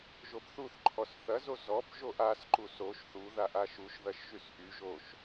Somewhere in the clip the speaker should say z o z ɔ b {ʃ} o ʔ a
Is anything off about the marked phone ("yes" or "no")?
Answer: yes